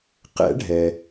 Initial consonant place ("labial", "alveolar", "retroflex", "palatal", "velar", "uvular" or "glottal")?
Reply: uvular